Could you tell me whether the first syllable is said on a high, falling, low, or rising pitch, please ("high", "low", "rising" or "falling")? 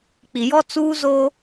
low